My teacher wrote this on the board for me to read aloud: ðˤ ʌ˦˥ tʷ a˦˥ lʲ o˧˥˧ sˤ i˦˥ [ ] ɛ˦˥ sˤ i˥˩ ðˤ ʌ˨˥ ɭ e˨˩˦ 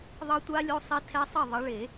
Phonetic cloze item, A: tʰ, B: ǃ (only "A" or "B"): A